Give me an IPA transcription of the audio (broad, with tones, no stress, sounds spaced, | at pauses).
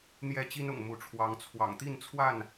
n̪ j ɛ˥˨ t͡ɕ i˦ n ʊ̰˨˩ ŋ m u˨˦ ʈ͡ʂʰ w ɑ˨˦ ŋ t͡sʰ w ɑ̰˨˩ ŋ t̪ i˥˨ n t͡sʰ w a˥˨ n